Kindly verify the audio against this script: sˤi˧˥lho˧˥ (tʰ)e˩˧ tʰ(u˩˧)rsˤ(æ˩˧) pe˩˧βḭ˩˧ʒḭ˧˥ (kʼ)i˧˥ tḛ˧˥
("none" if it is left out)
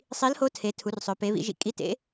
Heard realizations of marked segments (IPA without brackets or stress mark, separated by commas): tʰ, u˩˧, œ˩˧, kʼ